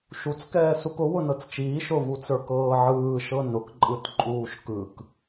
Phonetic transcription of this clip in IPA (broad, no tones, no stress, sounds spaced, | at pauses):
ʃ u t͡s k ɛː s u k ʊ w ʊ n ɤ t͡s t͡ʃ iː ʃ ʊ v u t͡s ə˞ k ɤː ʕ ɯː ʃ ɤ n ʊ k ǃʼ ɯ t ǃʼ uː ʃ k ɯ k